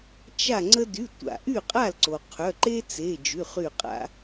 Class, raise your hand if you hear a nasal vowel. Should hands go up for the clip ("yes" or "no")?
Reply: no